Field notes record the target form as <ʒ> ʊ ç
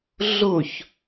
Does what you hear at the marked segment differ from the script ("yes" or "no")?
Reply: yes